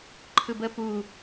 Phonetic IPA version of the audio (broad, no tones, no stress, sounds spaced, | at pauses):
ǃʰ ɯ b ə p u